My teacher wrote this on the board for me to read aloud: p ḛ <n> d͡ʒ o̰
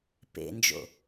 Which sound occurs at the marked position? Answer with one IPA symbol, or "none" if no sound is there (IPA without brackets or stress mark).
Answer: n